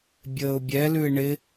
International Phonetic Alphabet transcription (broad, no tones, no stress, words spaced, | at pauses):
bʲəːʊ̯bʲɛlʉɪ̯ ɳɪ